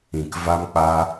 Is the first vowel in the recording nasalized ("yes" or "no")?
yes